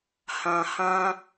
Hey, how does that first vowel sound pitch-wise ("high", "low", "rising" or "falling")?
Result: low